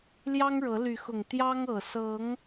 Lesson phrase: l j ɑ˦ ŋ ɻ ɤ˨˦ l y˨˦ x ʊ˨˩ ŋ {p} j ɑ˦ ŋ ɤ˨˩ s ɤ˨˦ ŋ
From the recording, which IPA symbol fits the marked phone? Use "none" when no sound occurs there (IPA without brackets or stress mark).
t̪